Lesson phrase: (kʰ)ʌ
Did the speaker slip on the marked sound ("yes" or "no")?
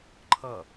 yes